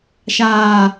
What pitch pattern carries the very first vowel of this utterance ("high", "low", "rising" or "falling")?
high